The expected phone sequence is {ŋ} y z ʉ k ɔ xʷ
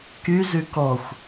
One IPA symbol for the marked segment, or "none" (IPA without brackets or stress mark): k